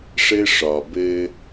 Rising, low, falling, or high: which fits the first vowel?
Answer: high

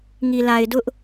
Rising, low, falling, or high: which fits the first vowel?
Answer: low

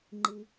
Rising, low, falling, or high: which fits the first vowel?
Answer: low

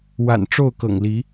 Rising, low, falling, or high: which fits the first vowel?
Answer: low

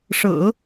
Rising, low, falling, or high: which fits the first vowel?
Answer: low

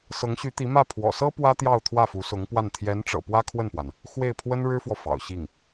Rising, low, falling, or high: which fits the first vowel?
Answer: rising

